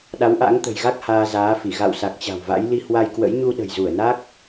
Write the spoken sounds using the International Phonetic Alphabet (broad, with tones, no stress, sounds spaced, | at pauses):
ɗ a˨˦ w ʔ a̰˧˥ ŋ t̪ ə̤˨˩ j ɣ a˦˥ k̚ h aː˧ z aː˨˦ f i˧˩ ɣ a̰˧˨ w s a˨˩ k̚ t͡ɕ a̤˨˩ w v a̰˧˥ j l i˧ h w a˧ j k w ə̰˧˥ j ɲ u˧ ɗ ə̤˨˩ j z u˧˩ ə̯ n a˦˥ k̚